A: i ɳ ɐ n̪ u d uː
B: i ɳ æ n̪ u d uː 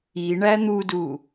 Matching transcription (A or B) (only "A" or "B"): B